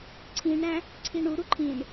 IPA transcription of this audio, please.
ǀʰ ĩ ɳ ɾ æ̃ | ǀʰ i ɳ u ɾ u ǃʰ ĩ ɳ

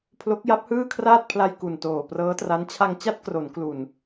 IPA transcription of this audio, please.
pʰ l o˦˥ k̚ j a˦˥ p̚ h ɯː˥˩ kʰ r aː˥˩ t̚ pʰ l a˧ j k u˨˩ n t oː˨˩ p r ɤː˦˥ t r a˦˥ n t͡ɕʰ a˧ ŋ t͡ɕ a˥˩ t̚ k r o˩˦ n k l u˨˩ n

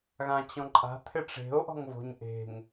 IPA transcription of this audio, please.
ɣ ã t͡ɕ ɔ̃ ǃʼ a̤ t̪ʰ ɪ ʈ͡ʂ e̤ o̯ ʔ ɔ̤ ŋ v o̤ ɲ ʔ e̤ ŋ

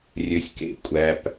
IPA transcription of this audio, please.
rʲ ø˧ sʲ k ḛ˧ kʷʼ æ˧ p

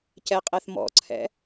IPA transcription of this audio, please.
c ɛ qʼ ɛ θ m ɔ̰ ǀʰ ɛ̰

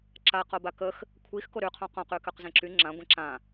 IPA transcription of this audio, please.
ǁ a q o b a k ə x | kʷʰ i x k o ɾ y qʰ õ q õ q y k ø q z ẽ ǁ y ŋ͡ǁ ã ɡʷ ẽ ǁ ã

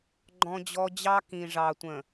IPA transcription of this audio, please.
ɡ͡ǃ ɔ̃˦ d͡ʑ ɔ˦ d͡ʑ ɑ˦ k ĩ˨ ʐ ɑ˨ tʷ ə̃˨

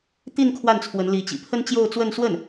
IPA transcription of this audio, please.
t̪ i˥˧ n kʰ w a˥˩ n t͡sʰ w ə˧˥ n l i˧˥ t͡ɕ ḭ˨˩ pʰ ə˥ n t͡ɕ j o˥˧ ʊ̯ t͡s w ə˥˧ n s w ə˥˩ n

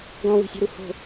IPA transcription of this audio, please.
ɡ ɔ̃ w i̤ sʲ o̤ ɾ u h o̤

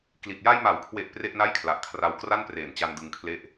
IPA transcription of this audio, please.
k l i˨˩ t̚ j a˧ j m a˩˦ w kʰ w e˨˩ ʔ p r e˥˩ ʔ n a˥˩ j kʰ l a˨˩ ʔ kʰ r a˧ w k r a˥˩ n p r eː˨˩ n t͡ɕ a˧ n d ɯ˧ ŋ kʰ l e˥˩ ʔ

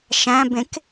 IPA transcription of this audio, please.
ʃ æ̃ b ẽ k

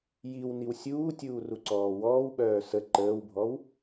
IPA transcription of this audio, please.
j i w n i w sʲ uː tʲ uː r u ǀ ɔː w ɔː w ɓ œː s ə ǃ əː w bʱ ɔ w

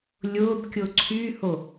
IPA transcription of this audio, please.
lʲ ʊː b kʲ ʊ ǀʰ y h o

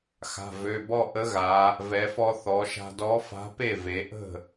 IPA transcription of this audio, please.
x a̤˩˧˩ v ø˩˧˩ b ɔ˥˧ ʔ ə˧˥ ɣ a˩˧ | v ɛ˩˧ f ɔ˧ θ ɔ˩˧ ʃ a̤˧ d ɔ˧˥ f a̤˧˥ p e˥˩ v e˩˧ ʔ ə̤˥˩

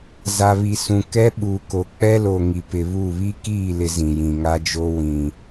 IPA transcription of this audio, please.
z a˨ β i˨ s ũ˨ k ɛ˦ ɓ uː˨ k o˨ k͡p ɛ˦ l o˨ ŋ i˨ p ɪ˨ β u˦˨ β i˦ k iː˦˨ l ɪ˨ z ĩ˨ j ĩ˨ ŋ a˦ d͡ʒ o˦ w ĩ˨

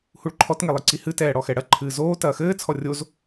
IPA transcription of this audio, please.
h u ɭ ǃʰ ɔ t ŋ e lˠ ɨ ǀ i h ɨ t ɛː ɽ ɔ x ɛ ɽ ɐ ǃʰ ɨː z oː t ɐː x ɘː t͡sʰ ɔ rʲ o z

